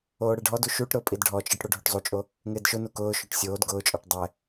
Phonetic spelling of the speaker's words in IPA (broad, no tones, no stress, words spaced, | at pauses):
oːɽɛɖʱɔdu ʃuʈɾʊː pʼidɖʱɔt͡ʃʼɪʈ ɽoɖʱoʈzˤut͡ʃʼo | ŋɪːdʃʊnu kʊːʃoʈ sʲoːd ɡʊːt͡ʃʼɔʈ dˤɛ